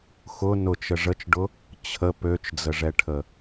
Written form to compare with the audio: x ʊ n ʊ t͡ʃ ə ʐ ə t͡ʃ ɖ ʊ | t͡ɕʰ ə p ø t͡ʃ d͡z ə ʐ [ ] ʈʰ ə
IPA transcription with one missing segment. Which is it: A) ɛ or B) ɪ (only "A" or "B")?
A